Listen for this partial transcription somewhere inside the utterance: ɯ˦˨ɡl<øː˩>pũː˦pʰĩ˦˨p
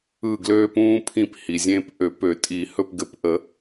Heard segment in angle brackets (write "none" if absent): øː˦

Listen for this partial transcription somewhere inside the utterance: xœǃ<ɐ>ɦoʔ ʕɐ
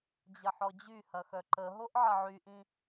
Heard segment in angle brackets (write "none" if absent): ə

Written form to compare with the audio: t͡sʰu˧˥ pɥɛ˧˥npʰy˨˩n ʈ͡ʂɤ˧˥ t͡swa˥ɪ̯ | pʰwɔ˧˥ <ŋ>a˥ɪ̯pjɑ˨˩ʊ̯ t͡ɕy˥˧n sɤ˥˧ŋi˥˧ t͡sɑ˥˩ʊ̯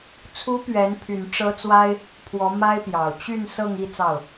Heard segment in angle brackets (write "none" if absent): m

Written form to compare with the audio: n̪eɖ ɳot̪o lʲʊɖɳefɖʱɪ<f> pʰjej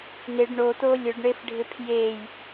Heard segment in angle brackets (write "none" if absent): none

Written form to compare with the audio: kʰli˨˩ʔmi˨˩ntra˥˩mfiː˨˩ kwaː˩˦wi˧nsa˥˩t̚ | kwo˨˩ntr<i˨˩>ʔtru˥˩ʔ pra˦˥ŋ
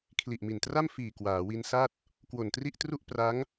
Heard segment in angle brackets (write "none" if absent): i˥˩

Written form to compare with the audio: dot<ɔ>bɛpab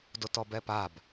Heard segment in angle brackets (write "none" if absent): ɔ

